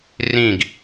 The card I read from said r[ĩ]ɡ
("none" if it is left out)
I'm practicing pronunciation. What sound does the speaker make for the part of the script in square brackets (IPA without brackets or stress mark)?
ĩ